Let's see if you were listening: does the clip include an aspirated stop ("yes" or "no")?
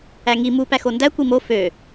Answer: no